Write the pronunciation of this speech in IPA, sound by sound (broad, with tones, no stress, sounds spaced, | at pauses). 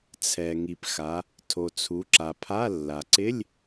t͡sʰ ɛ˩ ŋ i˩ p x a˩˧ | tʰ o˩ t͡sʰ u˩˧ ǁ a˩ pʰ a˧˥˧ lː a˩ ǀ ɪ˧˥˧ lʲ